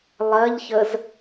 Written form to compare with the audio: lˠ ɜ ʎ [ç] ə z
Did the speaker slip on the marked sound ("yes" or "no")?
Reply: no